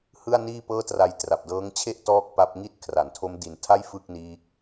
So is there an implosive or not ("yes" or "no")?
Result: no